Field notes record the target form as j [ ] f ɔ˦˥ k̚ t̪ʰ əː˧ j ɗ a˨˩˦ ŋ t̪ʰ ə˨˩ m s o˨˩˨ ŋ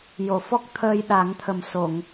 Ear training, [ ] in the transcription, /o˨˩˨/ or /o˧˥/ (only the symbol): o˨˩˨